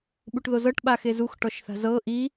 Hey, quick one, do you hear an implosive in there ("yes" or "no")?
yes